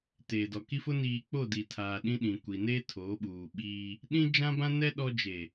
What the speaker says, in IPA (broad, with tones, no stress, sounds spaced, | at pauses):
t eː˨ d ɔ˨ k i˦ f ʊ˦ n iː˨ k͡p o˦˨ d i˨ tʰ aː˨ ɗ ĩ˦ ɗ ĩ˨ kʷ i˨ n eː˦ tʰ oː˨˦ ɓ uː˨ ɓ iː˦ | ɗ ĩ˦ d͡ʒ ã˦ b ã˦ n ɛ˦ ɗ ɔ˦ d͡ʒ e˨